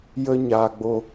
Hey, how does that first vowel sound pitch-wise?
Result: high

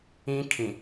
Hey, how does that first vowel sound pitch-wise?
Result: high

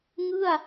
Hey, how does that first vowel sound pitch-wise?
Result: falling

